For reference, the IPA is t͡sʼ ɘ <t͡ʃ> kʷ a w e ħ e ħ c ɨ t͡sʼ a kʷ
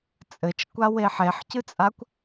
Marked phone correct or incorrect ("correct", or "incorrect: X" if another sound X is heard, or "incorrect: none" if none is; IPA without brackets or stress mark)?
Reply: correct